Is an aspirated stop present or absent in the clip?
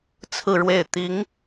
present